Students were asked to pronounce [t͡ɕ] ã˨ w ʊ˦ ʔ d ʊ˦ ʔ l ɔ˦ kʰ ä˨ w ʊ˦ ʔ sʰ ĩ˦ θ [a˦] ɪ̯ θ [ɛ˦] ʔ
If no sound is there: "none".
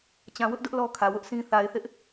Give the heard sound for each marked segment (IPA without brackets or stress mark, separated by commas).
t͡ɕ, a˨, ɪ˦